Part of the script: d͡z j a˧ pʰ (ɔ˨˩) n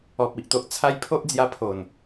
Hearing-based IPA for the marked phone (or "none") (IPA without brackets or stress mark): o˨˩